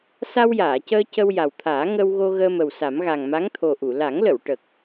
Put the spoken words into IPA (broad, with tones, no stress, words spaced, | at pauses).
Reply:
sa˧wjaː˨˩˨cəː˧ cə˧w ja˨˩wt̪ʰaː˨˩˦ ŋə˧wɣo˧ ɣəː˧mə˨˩wsa˨˩˦m ɣa˨˩ŋma˧˥ŋt̪ʰo˨˩ʔu˨˩˨ la˨˩˦ŋlə˨˩˨w ʈə˨˩k̚